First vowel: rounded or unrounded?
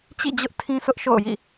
unrounded